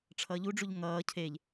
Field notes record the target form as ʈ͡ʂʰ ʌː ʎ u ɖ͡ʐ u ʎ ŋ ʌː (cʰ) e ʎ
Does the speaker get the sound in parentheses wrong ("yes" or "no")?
no